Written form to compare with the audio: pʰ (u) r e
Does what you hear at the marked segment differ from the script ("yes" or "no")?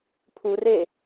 no